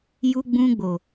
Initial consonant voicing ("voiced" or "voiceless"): voiced